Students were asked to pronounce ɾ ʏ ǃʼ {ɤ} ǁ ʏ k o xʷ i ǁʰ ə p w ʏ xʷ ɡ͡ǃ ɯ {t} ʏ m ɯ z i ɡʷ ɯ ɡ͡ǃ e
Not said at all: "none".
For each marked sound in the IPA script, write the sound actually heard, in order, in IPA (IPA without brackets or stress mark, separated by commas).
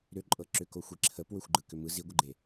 ɤ, k